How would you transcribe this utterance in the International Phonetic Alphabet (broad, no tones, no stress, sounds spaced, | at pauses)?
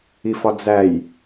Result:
i f ɒ d͡z æ j